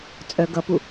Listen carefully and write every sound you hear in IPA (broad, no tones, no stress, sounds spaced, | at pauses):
t͡sʼ œ ɡ ʌ p u